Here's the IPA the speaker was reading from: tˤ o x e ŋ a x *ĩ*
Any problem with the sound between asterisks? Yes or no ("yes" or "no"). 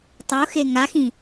no